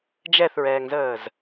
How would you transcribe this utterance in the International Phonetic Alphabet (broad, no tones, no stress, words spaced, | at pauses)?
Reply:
d͡ʒɛθɹɛːŋzəːz